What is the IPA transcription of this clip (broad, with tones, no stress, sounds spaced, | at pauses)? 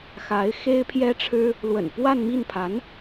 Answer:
x a˧˥ ɪ̯ x e˥ ɪ̯ pʰ j ɛ˥ ʈ͡ʂʰ ɻ̩˥ | l w ə̰˨˩ n p w a˥˧ n m i˥˩ n pʰ a˧˥ n